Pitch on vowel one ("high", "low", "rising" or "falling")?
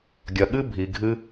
low